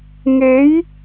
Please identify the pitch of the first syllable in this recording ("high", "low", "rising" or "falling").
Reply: rising